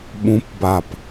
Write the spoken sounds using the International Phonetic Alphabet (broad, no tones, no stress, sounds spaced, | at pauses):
ɓ ũ p b a p